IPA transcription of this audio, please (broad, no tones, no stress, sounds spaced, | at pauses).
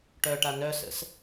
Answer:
ʈ œ ʈ a n œ s ə̰ s